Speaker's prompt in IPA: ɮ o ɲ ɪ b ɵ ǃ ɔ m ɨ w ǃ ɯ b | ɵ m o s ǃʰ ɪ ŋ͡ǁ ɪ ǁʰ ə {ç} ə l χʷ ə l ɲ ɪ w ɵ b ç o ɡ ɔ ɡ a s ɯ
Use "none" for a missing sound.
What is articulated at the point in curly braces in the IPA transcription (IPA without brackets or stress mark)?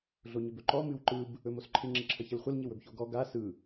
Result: ç